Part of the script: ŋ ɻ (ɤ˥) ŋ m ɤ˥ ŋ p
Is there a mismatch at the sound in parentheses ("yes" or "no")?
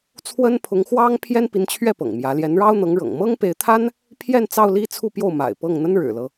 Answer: yes